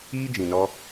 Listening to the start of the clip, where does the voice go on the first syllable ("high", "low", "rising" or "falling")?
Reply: high